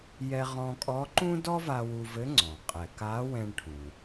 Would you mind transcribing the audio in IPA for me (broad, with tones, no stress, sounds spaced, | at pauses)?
j ɛ˧ ʁ ɔ̃˧ kʼ ɔ˧˥ ǃ ũ˥ d ɔ˥ v a˧ w u˧ v ɘ˧˥ ŋ͡ǀ ɔ̃˩ qʼ ɛ˩ k a˧˥ w ɛ̃˧ ɳ ʈʰ ũ˩